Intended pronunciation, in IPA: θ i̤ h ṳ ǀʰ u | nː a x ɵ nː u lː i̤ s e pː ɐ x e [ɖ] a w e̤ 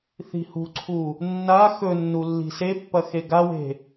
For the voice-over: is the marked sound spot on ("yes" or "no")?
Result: no